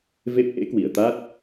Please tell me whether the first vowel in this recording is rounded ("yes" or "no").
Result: no